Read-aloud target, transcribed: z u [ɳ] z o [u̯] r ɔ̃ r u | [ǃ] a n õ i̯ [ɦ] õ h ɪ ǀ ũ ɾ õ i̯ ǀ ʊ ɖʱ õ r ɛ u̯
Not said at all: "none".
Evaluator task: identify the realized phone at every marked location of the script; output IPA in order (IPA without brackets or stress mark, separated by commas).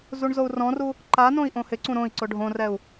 ɳ, u̯, ǃ, ʔ